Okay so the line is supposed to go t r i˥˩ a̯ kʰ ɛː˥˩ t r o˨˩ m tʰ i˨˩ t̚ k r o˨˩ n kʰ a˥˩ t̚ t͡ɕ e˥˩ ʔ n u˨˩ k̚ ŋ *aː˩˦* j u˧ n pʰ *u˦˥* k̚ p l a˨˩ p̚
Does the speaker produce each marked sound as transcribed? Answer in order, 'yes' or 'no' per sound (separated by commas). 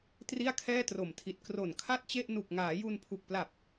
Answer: yes, no